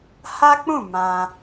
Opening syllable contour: high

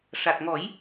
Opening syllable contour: low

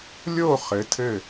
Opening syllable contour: falling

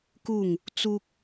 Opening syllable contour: falling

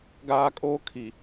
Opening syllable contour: high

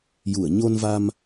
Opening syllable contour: low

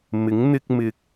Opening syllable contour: rising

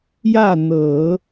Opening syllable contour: falling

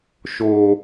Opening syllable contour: low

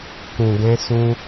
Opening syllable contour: low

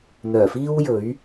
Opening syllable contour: low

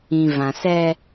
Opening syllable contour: low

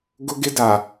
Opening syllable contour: high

